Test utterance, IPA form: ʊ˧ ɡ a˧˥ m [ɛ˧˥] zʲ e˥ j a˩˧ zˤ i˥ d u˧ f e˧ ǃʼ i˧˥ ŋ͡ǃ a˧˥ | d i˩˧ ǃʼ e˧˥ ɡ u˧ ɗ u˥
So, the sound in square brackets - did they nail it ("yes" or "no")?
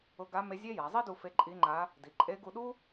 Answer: no